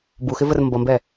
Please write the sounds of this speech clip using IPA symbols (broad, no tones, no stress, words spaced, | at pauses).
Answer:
buxɪvər mbʌmbɛ